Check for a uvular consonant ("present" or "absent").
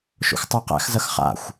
present